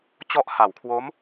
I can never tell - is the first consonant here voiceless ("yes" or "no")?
yes